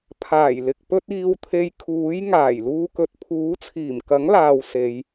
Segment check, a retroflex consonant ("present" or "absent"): absent